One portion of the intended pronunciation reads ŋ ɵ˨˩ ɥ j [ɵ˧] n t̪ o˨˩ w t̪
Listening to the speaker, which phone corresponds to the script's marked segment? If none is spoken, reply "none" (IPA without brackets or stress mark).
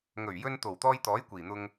ɵ˧